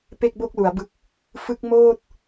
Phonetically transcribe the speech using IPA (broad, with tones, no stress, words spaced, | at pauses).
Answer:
pe˥˩k̚bo˥˩k̚lu˩˦a̯bɯ˦˥k̚ | fɯ˦˥k̚moː˥˩t̚